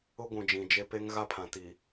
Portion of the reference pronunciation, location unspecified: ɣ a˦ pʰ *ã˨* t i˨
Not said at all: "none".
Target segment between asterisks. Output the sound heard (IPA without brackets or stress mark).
ã˨